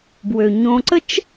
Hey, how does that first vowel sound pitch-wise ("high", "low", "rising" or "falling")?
low